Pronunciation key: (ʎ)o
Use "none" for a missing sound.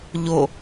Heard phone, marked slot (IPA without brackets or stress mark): ʎ